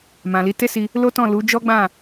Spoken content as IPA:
m ã˨ l i˨˦ t e˦ s i˧ | l o˦ t ɔ̃˦˨ l u˨˦ d͡ʒ ɔ˦ ɡ͡b ã˦˨

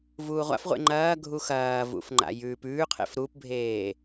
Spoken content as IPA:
v uː ʁʷ a̰ f ʁʷ ḛ ŋ͡ǃ ɐː ɡʱ u x ɐː v ṵ f ŋ͡ǃ a̰ j ʉː p ʉː qʰ ḛ f ɾ u p bʱ eː

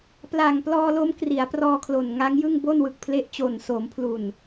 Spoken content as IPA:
p l a˨˩ ŋ p l ɔː˧ l o˦˥ m k r i˩˦ a̯ p r ɔː˧ kʰ l o˨˩ n ŋ a˦˥ ŋ j ɯ˥˩ ŋ b o˥˩ n w ɯ˨˩ k̚ pʰ l e˦˥ ʔ t͡ɕ o˨˩ n s o˩˦ m pʰ l u˨˩ n

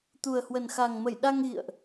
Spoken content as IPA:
t̪ u˨˩ ə̯ h w ə˨˩ n x a˨˩ ŋ m ə˧˩ j ɗ a˧ ŋ ɣ ḭ˧˨ ə̯ ʔ

